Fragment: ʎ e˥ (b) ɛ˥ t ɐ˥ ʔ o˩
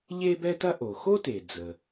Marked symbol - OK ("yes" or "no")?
yes